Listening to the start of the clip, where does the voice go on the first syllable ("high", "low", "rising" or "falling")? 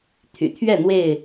low